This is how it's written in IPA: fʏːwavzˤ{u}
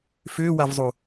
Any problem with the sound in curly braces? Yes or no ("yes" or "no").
no